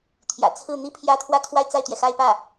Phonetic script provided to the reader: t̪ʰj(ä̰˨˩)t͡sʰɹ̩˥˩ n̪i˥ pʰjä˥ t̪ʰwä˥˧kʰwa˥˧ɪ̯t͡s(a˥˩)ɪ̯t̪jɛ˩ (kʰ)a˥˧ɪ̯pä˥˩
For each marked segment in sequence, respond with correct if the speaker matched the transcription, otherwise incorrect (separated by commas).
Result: correct, correct, incorrect